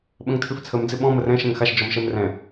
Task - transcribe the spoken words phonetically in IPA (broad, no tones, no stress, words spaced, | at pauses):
ɓə̃ŋtʰʉft͡sʰəm d͡zɪɓɔ̃ mərɛ̃ ʃɛ̃ŋxaʃ d͡ʒɔmʃɛmrɛ̃